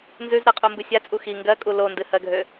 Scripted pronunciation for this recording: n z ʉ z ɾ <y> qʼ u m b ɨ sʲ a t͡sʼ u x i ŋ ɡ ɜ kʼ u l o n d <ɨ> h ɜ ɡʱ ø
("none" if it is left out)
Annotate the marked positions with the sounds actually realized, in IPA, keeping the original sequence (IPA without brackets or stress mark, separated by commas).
ɨ, ɨ